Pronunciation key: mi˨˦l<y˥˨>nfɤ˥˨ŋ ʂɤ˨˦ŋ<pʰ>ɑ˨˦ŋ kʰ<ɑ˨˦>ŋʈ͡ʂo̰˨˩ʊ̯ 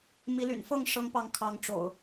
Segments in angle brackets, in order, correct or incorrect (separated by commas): incorrect, incorrect, correct